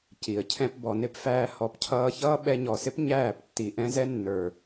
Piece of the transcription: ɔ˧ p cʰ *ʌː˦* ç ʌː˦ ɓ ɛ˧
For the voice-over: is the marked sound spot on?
yes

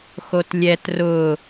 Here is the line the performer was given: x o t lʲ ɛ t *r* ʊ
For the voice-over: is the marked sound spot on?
yes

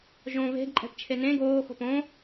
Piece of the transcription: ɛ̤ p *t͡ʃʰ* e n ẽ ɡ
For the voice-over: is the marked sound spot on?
yes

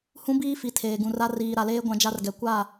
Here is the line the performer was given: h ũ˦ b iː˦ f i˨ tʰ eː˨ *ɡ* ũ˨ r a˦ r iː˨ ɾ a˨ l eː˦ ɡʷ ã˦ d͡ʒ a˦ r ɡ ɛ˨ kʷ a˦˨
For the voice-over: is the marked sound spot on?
yes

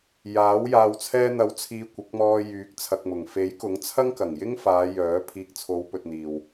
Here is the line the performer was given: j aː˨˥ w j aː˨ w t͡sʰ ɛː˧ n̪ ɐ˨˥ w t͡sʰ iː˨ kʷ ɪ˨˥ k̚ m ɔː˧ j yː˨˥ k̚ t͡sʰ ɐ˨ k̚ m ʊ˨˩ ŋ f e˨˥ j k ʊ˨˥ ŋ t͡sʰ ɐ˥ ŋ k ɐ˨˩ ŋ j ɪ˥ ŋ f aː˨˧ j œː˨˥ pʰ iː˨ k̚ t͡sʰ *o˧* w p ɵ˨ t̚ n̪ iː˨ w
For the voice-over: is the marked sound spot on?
no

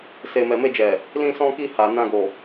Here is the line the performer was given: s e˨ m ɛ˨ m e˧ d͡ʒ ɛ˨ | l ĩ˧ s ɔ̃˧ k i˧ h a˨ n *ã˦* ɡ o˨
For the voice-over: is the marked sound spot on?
no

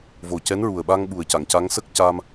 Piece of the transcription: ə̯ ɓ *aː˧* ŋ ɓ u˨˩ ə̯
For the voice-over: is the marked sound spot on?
no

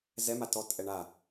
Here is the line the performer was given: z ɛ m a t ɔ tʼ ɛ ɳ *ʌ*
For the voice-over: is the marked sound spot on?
no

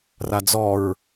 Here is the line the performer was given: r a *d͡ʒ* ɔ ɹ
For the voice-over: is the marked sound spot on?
no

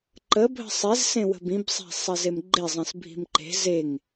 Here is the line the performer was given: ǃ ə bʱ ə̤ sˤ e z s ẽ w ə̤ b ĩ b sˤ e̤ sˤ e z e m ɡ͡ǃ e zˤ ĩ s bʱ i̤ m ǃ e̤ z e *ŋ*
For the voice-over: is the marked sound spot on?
yes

